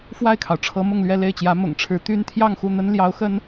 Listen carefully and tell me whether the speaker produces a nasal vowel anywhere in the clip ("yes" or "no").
no